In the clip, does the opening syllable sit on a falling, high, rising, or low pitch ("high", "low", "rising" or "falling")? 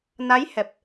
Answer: rising